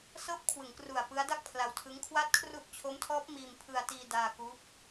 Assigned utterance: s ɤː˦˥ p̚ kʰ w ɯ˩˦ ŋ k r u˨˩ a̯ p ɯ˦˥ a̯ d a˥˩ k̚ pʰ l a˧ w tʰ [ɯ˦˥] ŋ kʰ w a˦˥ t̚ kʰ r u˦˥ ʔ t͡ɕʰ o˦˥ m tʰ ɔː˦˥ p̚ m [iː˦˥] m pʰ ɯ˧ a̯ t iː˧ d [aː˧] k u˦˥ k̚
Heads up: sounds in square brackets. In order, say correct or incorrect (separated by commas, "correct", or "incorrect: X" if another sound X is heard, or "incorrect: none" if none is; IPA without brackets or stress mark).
correct, incorrect: iː˧, correct